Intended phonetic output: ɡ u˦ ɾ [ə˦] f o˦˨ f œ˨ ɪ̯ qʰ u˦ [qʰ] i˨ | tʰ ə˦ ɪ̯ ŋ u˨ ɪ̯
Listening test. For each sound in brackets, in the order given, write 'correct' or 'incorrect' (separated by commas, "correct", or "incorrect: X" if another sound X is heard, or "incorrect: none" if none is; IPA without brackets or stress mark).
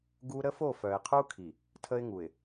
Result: correct, incorrect: kʰ